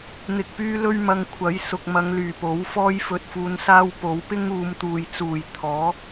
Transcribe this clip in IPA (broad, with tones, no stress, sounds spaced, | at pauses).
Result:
n̪ ɪ˧ k̚ p yː˥ l ɵ˥ ɥ m ɐ˧ ŋ kʷʰ ɐ˨˥ j s ʊ˨ k̚ m ɐ˨˧ ŋ l yː˨˩ p o˨˥ w f ɔː˥ j f ɵ˧ t̚ f uː˧ n s aː˥ w p o˨˥ w p ɪ˥ ŋ uː˨˧ m t̪ uː˨ j t͡s uː˨˩ j t̪ʰ ɔː˨˥